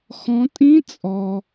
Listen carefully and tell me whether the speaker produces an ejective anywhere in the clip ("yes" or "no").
yes